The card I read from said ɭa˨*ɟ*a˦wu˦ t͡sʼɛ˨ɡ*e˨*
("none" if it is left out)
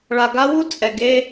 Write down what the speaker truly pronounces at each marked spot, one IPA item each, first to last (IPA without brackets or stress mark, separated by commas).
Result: ɡ, e˦